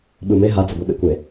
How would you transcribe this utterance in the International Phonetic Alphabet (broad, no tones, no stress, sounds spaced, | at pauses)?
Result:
ɓ ɯ m e ɦ a d͡z ʊ ɡʷ ɛ ɓ ḛ kʷ e